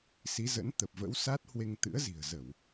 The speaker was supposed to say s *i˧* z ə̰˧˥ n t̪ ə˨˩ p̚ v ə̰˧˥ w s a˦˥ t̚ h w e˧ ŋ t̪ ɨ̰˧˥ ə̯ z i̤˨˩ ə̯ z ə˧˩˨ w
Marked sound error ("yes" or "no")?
yes